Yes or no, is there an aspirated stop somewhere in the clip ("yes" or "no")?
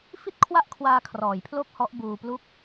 yes